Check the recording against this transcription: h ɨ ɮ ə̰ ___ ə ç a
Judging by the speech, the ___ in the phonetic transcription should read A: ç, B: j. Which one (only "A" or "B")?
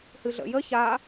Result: B